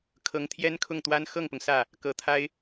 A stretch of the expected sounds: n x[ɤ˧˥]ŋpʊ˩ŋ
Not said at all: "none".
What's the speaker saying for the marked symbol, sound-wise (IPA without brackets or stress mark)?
ɤ˥˩